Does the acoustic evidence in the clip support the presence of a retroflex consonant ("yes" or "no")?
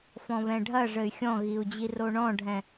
yes